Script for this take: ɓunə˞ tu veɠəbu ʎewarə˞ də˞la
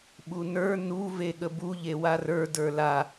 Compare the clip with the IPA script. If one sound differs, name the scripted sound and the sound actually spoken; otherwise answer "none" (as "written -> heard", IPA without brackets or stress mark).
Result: t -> n